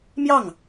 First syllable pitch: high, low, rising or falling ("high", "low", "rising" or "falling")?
falling